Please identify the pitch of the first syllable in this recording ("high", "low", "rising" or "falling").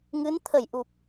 rising